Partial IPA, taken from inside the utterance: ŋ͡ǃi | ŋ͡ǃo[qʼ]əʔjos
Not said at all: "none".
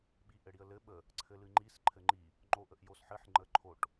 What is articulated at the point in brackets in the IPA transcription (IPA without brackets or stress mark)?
ʔ